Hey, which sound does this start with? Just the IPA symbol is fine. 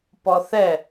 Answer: p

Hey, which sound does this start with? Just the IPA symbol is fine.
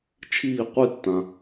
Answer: t͡ʃʰ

